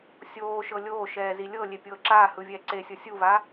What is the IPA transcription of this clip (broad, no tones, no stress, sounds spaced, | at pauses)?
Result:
sʲ oː ʃ ɤ lʲ oː ʃ ɛː z i lʲ ɤ lʲ e pʲ ɤː ǁ aː h ɯ vʲ ɛː ǀ e sʲ ɤ sʲ u v a